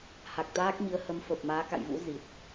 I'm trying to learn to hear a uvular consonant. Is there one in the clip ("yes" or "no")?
no